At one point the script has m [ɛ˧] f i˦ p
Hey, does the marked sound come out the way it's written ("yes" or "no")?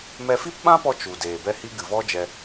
yes